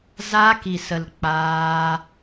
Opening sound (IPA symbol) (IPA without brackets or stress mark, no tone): z